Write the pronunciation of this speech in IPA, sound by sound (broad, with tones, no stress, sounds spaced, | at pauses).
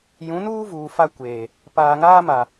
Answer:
j ũ˨˦ n uː˦ v uː˨ f a˦ kʷ eː˨ | p aː˨ ŋ aː˦ m a˨